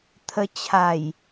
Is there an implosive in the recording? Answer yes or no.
no